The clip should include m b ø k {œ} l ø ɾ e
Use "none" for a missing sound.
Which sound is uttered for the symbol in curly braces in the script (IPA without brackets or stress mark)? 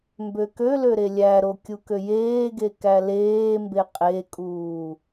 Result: ø